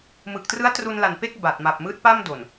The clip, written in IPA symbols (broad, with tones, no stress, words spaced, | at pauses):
mɯ˨˩k̚trɯ˦˥a̯tru˧nla˨˩n pe˥˩k̚ ba˨˩t̚ma˨˩p̚ mɯː˦˥t̚pa˥˩m do˨˩n